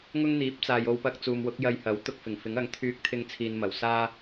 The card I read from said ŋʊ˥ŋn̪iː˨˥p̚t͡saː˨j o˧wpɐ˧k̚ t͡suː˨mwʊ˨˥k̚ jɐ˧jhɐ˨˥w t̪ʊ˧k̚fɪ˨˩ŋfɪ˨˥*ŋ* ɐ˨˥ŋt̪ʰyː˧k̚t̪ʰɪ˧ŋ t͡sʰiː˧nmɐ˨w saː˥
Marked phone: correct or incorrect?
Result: correct